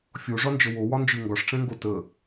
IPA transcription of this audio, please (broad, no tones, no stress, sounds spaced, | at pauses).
fʲ o ʐ ɒ n d͡ʒ ə w o w ɒ n d͡ʒ ɯ ŋ ɡ ɒ ʂ ʈ͡ʂ ɛ̃ ŋ ɡ o t ə